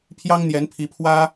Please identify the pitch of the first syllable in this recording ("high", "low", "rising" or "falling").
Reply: high